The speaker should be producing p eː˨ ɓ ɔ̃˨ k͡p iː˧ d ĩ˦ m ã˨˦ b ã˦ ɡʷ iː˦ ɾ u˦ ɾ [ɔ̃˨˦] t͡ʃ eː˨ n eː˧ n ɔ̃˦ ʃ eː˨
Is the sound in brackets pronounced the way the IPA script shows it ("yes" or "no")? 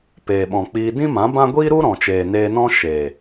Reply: no